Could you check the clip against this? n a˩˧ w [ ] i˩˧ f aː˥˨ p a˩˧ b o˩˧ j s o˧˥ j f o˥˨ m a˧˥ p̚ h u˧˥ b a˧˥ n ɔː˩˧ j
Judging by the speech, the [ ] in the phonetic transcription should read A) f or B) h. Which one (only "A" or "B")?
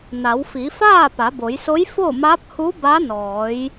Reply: A